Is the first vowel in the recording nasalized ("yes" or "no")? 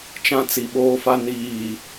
yes